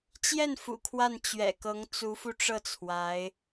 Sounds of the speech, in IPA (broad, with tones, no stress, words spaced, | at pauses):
t͡ɕjɛ˥˩n fṵ˨˩kʰwa˥˩n t͡ɕɥɛ̰˨˩kɤ˧˥ŋ t͡su˧˥fu˧ʈ͡ʂɤ˥˩ t͡sʰwa˧˥ɪ̯